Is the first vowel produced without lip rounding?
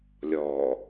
no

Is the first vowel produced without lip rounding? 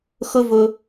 no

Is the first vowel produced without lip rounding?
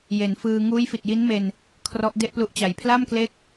yes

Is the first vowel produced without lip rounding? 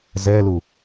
yes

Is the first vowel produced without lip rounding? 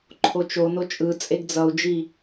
no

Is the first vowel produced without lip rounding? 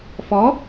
no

